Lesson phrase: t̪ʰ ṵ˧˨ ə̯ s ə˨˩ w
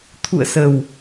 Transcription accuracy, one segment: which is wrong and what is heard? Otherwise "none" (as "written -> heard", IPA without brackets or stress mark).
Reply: none